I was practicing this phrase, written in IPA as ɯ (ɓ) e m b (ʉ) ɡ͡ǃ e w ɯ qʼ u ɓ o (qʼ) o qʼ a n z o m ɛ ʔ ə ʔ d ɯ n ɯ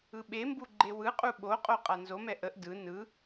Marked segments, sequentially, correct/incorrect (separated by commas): correct, incorrect, correct